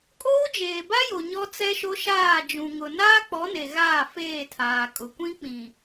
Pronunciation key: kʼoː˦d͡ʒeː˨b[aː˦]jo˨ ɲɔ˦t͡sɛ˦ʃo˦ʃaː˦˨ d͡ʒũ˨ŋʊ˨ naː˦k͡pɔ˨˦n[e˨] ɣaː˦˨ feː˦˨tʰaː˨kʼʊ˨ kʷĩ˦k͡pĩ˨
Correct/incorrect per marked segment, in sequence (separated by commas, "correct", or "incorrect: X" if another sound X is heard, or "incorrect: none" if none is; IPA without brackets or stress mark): incorrect: a˦, correct